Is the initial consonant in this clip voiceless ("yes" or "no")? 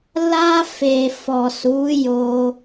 no